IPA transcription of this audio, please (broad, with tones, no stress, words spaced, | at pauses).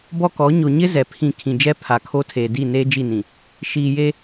bɔ˦kɔ˨˦ ɲo˨ɲɪ˦ zɛ˨pʰĩ˦˨ kʰĩ˨d͡ʒɛ˦ pʰa˨kʰo˦tʰeː˨ di˦˨ neː˦d͡ʒi˦˨nĩ˨ | ʃiː˨je˦